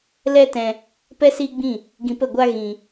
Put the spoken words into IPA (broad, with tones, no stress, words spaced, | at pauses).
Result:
lɛ˦tɛ̃˧ | pɛ˦siː˦ɡ͡bĩ˦˨ | ɡĩ˧pə˦˨ɡʷa˦ ɣĩ˧